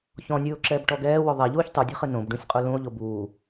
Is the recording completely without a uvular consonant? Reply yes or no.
no